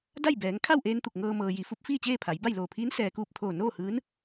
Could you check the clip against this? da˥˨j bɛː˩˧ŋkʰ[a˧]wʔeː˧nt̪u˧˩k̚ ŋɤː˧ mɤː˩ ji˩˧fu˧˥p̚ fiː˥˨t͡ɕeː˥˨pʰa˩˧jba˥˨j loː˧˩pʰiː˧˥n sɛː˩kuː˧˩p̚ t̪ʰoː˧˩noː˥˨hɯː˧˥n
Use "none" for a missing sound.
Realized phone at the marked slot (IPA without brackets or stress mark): a˥˨